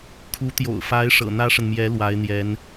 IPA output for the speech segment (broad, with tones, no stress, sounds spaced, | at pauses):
kʰ u˧˥ t̪ j o̰˨˩ ʊ̯ f a˧˥ ɪ̯ ʂ ɤ̰˨˩ n̪ ä˥ ʂ ə˨ n m j ɛ˧˥ l w a˧˥ ɪ̯ n̪ j ɛ˧˥ n